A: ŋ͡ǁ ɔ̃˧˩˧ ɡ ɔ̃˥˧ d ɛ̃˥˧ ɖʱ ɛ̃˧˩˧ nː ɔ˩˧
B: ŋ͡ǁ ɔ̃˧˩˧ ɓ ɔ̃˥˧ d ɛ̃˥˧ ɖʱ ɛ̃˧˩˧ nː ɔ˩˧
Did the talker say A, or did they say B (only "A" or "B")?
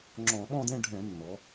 B